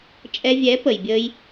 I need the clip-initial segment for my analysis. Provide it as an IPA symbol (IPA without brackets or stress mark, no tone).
t͡ʃʼ